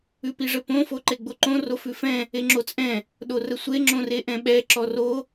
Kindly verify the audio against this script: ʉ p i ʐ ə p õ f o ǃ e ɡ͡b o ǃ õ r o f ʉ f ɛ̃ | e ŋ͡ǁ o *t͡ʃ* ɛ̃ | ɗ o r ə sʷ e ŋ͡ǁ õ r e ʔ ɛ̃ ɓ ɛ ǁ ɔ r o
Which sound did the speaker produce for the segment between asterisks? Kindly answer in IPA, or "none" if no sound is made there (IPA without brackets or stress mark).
t͡sʼ